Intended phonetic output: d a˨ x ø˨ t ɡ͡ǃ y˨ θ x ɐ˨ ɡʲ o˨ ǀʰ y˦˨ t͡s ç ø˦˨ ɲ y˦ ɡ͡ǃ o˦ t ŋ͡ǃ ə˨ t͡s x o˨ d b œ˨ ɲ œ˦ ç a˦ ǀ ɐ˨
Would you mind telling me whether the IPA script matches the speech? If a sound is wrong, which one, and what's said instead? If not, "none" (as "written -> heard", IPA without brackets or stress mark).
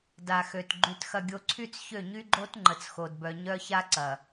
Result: θ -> t